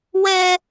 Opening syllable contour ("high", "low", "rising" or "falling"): high